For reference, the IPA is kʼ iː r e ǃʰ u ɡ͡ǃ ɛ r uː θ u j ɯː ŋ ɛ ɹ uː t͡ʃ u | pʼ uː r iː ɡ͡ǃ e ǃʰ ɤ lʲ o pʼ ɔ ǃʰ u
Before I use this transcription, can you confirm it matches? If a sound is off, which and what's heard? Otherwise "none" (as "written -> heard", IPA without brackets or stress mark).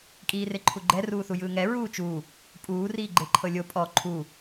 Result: none